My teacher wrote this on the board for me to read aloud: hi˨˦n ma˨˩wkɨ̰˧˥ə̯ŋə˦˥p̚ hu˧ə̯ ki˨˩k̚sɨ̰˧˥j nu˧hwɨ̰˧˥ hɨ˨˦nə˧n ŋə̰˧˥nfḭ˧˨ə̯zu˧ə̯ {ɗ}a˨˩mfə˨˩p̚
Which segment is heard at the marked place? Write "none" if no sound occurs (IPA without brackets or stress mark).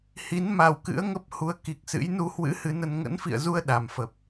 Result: ɗ